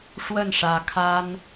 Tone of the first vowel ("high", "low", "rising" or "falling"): falling